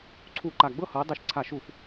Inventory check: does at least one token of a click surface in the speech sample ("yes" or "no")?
yes